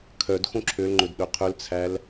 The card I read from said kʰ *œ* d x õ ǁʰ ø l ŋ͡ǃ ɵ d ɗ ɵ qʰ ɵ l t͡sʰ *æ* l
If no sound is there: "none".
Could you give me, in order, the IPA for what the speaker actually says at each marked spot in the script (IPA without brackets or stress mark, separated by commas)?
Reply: œ, æ